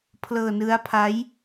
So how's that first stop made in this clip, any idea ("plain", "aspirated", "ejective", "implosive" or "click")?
aspirated